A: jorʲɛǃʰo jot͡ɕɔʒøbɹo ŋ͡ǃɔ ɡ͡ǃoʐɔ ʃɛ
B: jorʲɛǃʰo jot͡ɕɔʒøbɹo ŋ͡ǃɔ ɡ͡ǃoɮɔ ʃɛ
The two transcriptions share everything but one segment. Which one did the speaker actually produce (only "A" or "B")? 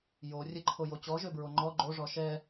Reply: A